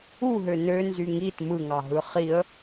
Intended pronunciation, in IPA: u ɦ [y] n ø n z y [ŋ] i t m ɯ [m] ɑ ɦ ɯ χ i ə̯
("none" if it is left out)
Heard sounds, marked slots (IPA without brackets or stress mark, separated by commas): ø, ŋ, ŋ